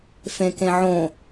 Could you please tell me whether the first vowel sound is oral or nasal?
nasal